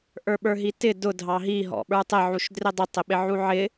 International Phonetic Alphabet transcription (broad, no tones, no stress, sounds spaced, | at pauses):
ʔ ə˞ ɓ ə˞ ɦ i t ɪ d ʊ dʱ ɑ ɦ i ɦ ɔ̰ ɓ ə˞ tˤ ɪ ʕ u ʃ d r ɪ dˤ ɪ tˤ ɪ ɓ ɪ ʕ u ʕ ɪ